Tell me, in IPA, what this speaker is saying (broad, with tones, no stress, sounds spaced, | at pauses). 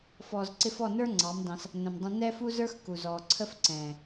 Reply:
f ɔː˨ z ǀ ɪ˧ f ɔ˦˨ n ə˞˦ ŋ͡ǀ ɑ˨˦ m d ɑ̃˧ s | n ə̃˨ m dˤ ə̃˧ n ɛ˦ f u˦ z ə˞˦ x k u˨ z ɔː˨ ǀʰ ə˦ f ǀ ɛ̃ː˨